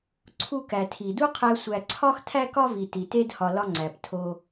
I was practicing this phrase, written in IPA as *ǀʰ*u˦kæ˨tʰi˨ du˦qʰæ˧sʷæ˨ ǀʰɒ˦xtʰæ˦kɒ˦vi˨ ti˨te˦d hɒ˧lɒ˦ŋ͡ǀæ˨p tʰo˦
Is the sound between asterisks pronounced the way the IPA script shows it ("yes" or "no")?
yes